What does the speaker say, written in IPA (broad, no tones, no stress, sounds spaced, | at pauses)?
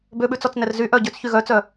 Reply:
b ø ɓ ʉ t͡s ɔ t͡s n ɛ r z y ʔ œ ɟ ø t͡s ç y ɣ œ t͡s œ